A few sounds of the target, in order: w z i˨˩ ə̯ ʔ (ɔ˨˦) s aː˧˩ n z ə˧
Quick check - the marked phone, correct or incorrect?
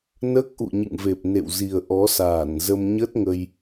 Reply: correct